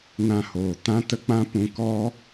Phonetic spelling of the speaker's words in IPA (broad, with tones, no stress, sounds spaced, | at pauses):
n ã˧ h oː˨ t ã˦ t ə˦ k͡p ã˦ p ũ˧ k ɔ˦